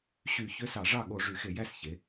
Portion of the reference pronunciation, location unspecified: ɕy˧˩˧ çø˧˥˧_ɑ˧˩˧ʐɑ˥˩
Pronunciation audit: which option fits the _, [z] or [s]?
s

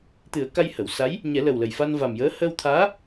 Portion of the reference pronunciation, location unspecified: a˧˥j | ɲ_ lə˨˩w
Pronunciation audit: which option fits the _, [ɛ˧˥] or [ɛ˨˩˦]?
ɛ˨˩˦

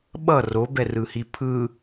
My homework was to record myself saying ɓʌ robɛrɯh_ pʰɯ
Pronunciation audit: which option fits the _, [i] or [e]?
i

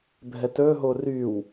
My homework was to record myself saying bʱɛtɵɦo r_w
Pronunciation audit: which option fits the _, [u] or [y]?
y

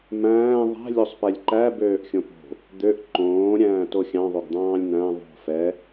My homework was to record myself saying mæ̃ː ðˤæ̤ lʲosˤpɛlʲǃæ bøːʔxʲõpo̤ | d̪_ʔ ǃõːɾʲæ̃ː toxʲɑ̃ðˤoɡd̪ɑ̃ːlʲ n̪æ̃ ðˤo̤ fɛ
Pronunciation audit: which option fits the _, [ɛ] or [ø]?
ø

